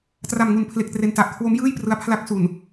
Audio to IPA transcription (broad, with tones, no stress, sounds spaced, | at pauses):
t r a˨˩ m ŋ u˨˩ n pʰ l e˨˩ k̚ t r e˧ n t a˨˩ ʔ kʰ w o˦˥ m j ɯː˥˩ j p r ɯ˧ a̯ pʰ l a˦˥ k̚ s u˨˩ n